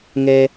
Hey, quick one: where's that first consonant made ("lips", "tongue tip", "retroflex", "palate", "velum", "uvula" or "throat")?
velum